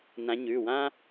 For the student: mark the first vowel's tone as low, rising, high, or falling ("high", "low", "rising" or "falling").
rising